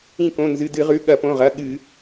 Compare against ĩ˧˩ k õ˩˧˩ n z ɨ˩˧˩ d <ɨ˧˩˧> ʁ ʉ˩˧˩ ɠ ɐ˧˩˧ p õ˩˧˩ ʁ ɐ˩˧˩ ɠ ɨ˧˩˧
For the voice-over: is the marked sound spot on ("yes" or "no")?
yes